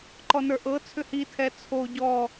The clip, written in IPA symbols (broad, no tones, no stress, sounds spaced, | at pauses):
ǃ ɔ n ə˞ ʔ ɤ t͡sʰ ʏ h i tʰ ɛ t͡sʰ o ɟ ɔ